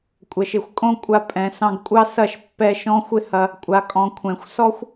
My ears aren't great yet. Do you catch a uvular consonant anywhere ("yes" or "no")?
no